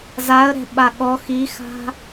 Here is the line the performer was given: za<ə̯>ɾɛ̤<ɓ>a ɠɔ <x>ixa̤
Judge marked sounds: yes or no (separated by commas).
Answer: yes, yes, yes